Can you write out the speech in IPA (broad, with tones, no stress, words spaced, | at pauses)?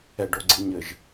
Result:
ɛ˨ɖo˨ ɡ͡ǀi˨ ɲɘ˨ʒ